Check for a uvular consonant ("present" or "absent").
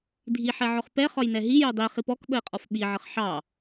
present